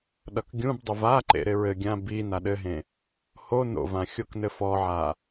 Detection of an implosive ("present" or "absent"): present